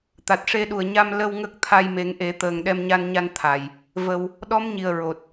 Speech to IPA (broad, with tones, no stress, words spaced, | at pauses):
t̪a˨˩t̚ʂe˧ɗu˨˩ə̯ɲa˧m lə˧w ŋə˦˥k̚ t̪ʰa˧jme˨˩˦ŋʔe˨˩˦ t̪əː˨˩ŋɗɛ˧mɲa˧nɲa˧n t̪ʰa˨˩j | və˧w | ɗɔ˧˥m ɲi˨˩ə̯ ɹo˨˩t̚